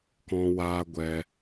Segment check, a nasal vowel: present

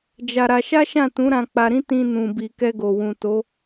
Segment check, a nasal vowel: present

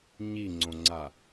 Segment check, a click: present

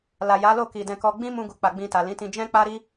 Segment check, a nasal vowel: present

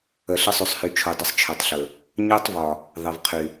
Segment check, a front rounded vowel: present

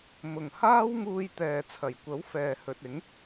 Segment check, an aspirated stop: present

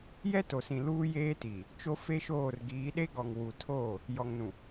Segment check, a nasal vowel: present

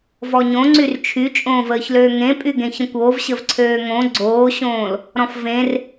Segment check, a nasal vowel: present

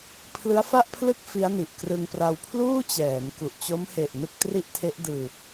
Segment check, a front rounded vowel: absent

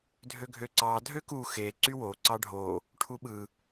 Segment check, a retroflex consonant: present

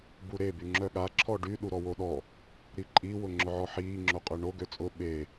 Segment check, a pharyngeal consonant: present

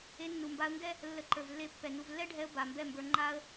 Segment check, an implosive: absent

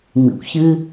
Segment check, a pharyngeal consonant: absent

